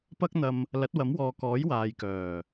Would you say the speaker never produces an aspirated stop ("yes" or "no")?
yes